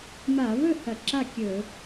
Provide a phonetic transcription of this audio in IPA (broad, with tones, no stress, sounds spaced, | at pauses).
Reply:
m a˧˩˧ β ɵ˥˩ h ɐ˧˩˧ ǁ a˥˩ kʲ ɵ˧˩˧